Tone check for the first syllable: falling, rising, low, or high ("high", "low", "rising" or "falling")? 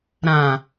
low